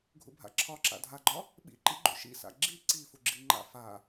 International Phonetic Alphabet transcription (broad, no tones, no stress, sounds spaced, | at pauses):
ɡʱ ṵ bʱ a̰ ǁʰ ɒ ǁ a̰ dʱ a ɡ͡ǃ ɒ | ɓ ḭ ǃ ḭ ɡ͡ǃ ṵ ʃ ḭ s a̰ ɡ͡ǁ i ǀ i f u ɡ͡ǁ i ŋ͡ǃ a̰ f a